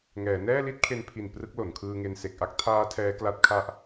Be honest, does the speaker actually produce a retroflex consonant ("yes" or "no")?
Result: no